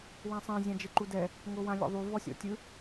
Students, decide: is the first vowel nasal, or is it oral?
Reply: nasal